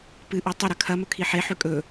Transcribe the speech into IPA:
pɨʔo tˤɵɾɐ kʰɐmɵkʰi ħe ħʉkʼɵ

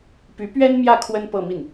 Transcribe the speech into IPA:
py˧˥ pɥɛ˥nmjä˥˩ kʰwə˥n pɤ˥˧mi˥˩n

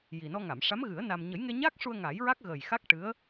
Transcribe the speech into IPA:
ji˨˩ nɔ˧ŋa˨˩˨mʂa˧˥m ɣɨ˨˩˦ə̯ na˧m ɲə˨˩˦jŋe˧ɲaː˦˥k̚ʂu˧ə̯ ŋa˨˩˦jɹa˦˥k̚ ɣə˨˩jxa˦˥k̚ʈɨ˧˥ə̯

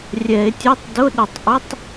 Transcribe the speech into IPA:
rʲɛ˨˩˦e̯tʲo˧˥˧tˤ dʊ˧˥˧ɗʊ˨˩˦tˤ ʔʊ˧˥˧tˤ

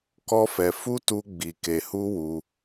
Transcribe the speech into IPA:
kɔ˦fɛ˧ fu˦tu˧ ɡ͡bi˨ke˨hu˧ wu˧

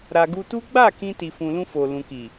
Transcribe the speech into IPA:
ɾa˨ɡu˧tu˦ ɡ͡ba˦˨ kĩ˧ti˨fũ˨lũ˧ fo˨lũ˨ki˨

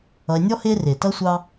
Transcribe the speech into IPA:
ʌ˨e̯nʲɔ˥hɪː˦rɪː˩ tʌ˥sʷɑ˦

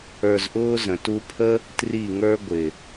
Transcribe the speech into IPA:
ə˞˧zʔʊː˦zə̃˨ tu˧pʰə˦ | tri˦˨ŋə˞˦ɡʷɪ˨

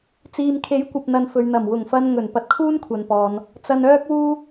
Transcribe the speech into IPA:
t͡siː˧m kʰe˨˥jkʷɐ˨p̚n̪ɐ˨n fɵ˨ɥn̪ɐ˨˩m wʊ˨˩ŋfɐ˧n ŋɵ˨˩n pɐ˧t̚kʰuː˥nkʷʰɐ˨npɔː˨n | t͡sɐ˧nœː˥k̚wuː˥

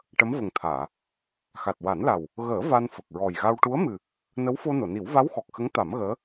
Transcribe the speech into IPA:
ʈə˧˥mvə˨˩ŋt̪ʰaː˨˩˨ | xa˨˩t̚wa˨˩˦nla˨˩w | ɣəː˨˩˦ va˧nfə˨˩k̚ɹɔ˨˩jɣa˧w ʈu˧˥ə̯mɨ˨˩ | nə˧˥wfo˧ no˨˩˨ni˨˩˦w va˧˥w xɔ˨˩k̚xə˧˥ŋ t̪a˨˩˦mɣəː˧˥

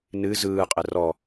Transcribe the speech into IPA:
nɨ zɯːqʼɘ rɔ

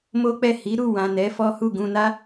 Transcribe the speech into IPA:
mo˦k͡pɛ˦˨ hi˨˦ ɾu˦˨wã˨ nɛ˨˦ fɔ˦ hu˦˨ɡũ˧na˦

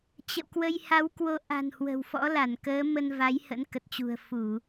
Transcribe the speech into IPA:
t͡ɕə̰˧˨wkwə˧j ha˨˦wkwo˨˦ʔa̤˨˩n hwə̤˨˩wfɔ̰˧˥la˧˩nkəː˨˦ mə˧nva˨˦j hə̰˧˥nkə˨˩t̚t͡ɕṳ˨˩ə̯ fu˧˩˨

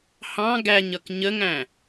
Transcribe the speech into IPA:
hɑ̃ ɡæɲʌk ɲəŋæ̃

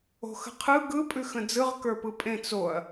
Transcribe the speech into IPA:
o̤xə̤qʰɯ ɡɯ pʼʉxə̃d͡zɯʁ kə˞pɯpʼẽ t͡soɐ̯

